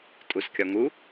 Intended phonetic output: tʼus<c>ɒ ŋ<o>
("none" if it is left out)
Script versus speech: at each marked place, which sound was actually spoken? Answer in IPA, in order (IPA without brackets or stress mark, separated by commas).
kʲ, u